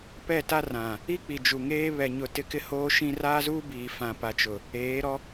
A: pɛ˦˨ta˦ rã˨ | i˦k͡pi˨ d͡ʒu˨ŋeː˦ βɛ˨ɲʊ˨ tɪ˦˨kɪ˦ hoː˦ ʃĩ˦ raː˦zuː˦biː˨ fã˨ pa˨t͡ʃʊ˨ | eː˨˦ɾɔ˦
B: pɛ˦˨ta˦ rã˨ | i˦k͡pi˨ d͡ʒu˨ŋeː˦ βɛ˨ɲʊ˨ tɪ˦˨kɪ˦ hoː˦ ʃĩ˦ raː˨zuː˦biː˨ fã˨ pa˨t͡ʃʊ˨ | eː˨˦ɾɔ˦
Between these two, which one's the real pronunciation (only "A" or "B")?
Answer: A